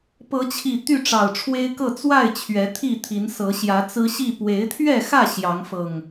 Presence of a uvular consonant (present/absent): absent